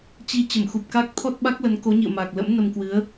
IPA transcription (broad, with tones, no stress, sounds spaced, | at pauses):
t͡ɕ i˧ t͡ɕ ə˧˩ m x u˨˩ p̚ k a˦˥ k̚ t̪ʰ ɔ˦˥ t̚ ɓ a˦˥ k̚ l ə˨˦ n k o˨˦ ɲ ḭ˧˨ ə̯ m a˨˩ k̚ l ə̰˧˥ m n ə˧ m k w ɨ˨˦ ə̯